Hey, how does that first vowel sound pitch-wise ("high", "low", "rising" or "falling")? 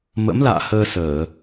rising